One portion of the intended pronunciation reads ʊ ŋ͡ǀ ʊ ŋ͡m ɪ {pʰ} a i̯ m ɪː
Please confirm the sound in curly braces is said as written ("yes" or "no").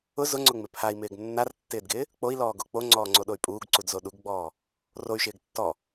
yes